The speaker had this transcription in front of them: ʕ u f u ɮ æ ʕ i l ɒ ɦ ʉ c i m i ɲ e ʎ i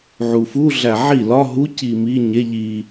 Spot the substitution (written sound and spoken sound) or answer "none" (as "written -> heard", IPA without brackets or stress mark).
ʉ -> u